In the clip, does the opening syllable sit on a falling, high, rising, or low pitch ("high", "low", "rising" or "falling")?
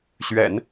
low